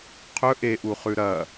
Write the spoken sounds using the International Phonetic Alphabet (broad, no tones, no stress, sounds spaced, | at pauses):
qʰ ɵ ʔ e ʔ u χ ʉ ɾ ɐ